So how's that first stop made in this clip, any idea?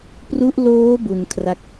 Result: plain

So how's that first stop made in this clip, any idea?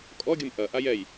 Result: ejective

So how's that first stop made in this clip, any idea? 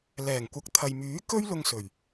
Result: plain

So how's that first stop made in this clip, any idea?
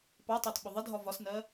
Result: plain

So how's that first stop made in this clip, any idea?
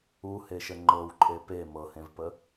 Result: click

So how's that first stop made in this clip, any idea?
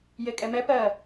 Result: ejective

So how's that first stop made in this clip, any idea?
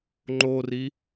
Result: click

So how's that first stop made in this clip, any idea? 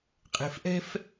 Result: ejective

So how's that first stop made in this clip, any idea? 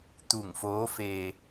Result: plain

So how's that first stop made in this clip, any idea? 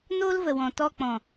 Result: plain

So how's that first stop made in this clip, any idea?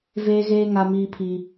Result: aspirated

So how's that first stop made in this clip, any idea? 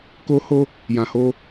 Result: plain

